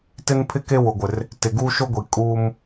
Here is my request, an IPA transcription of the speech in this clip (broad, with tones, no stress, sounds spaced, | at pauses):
t ɪ˦ n pʰ ɪ˦ k e˦ w ʊ˨ ɡʷ ɪ˨ r | t ɪ˨ ɡ uː˦ ʃ o˦ ɡʷ i˨ kʼ uː˦ m